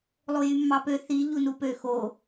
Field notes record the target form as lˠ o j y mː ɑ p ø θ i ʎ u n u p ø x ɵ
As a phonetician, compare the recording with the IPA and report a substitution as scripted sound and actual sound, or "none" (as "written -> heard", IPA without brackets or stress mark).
ɵ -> o